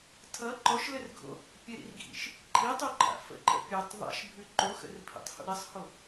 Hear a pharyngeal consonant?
no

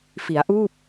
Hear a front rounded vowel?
no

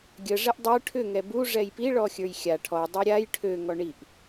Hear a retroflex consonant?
yes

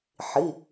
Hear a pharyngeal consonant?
yes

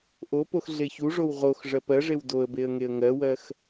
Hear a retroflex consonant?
yes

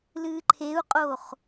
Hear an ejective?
yes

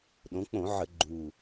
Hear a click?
yes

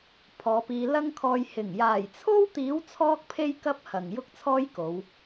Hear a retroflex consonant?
no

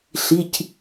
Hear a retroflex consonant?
no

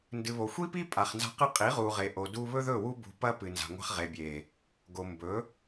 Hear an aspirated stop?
no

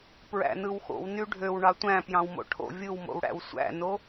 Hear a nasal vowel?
yes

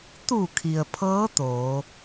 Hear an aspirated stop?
yes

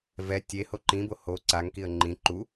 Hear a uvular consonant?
no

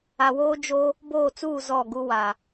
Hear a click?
no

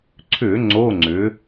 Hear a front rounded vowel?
yes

